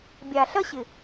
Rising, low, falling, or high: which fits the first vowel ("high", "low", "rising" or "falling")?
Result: low